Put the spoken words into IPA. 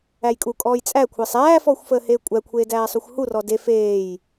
æ j kʼ u kʼ ɔː j t͡sʼ æ kʷʰ əː sˤ æː f ɔː xʷ f əː h eː kʷʼ æ kʷʰ eː d æː sˤ u xʷ h u r ɔ d e f eː j

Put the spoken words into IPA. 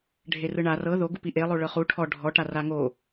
ɖʱ e r ɯ ɳ a r ɤ ð o ɡ u p i ʔ e lˠ o ɭ ɤ χ u ʈʰ ɔ ɖʱ ɔ ʈ a r a ŋ o

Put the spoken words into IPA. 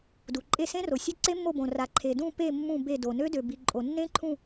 d u˩ ǃʼ e˦˨ s ẽ˦˥ r o˩ sʲ e˦˥ ǀ e˦˥ mː o˦˨ b õ˩ r a˩ ǃʰ e˩ d ũ˦˨ p e˦˨ mː ũ˦˨ b e˦˨ d o˩ n ø˦˥ d ø˩ b i˩ ǃʼ o˩ nː ẽ˦˥ ǃʰ ũ˦˨

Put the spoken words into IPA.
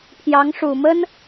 pʰ j ɑ˧˥ ŋ ʂ u˨˩ m ə˥ n

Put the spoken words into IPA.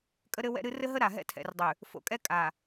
kʼ ə˦ ɾ ɘ˦ w ɛ̰˦ ɾ ɨ˦ r ɘ˦ ɦ ə˦ ɾ a˨ ɦ ɛ̰˦ tʰ ɛ̰˨ r dˤ ʉ˨ | f o̰˨ kʼ ɛ˦ kʼ a˨

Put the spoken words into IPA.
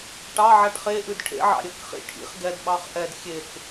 ʈ ɑ ʕ a ʈ χ e ʔ ʉ d ʈʰ ḛ ʕ ɑ̰ ɾʲ ə k χ ḭ ʈʰ ḭ χ ɡ ɛ d ɓ ɑ χ ʔ ɛ d xʲ e k

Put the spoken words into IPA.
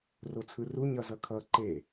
r o t͡sʰ ɯ r u ɲ ʌ z ʌ kʰ ʌ ǃ e

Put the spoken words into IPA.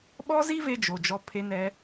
ɓ ɔ˦ z i˦ v e˧ d͡ʒ o˨ d͡ʒ ɔ˧ pʰ e˧ n ɛ˧

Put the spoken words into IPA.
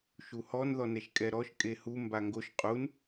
ʃ u h ɔ n ð ɔ n ɛ ʃ kʼ ɛ ɾ ɔ ʃ kʼ e h u m b a ŋ ɡ o ʃ qʼ u n

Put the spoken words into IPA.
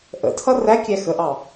ʔ ə̰ tʰ ʌ r æ kʲ æ x ə ʔ ɑ

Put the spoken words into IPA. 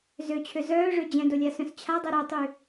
z ø t͡ɕʰ ø z œː ʐ ø d͡ʑ ɛ̃ d o lʲ a s œ̃ s t͡ɕʰ a dˤ ɛ ɾ o tˤ y

